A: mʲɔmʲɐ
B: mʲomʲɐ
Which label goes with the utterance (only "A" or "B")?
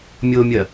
B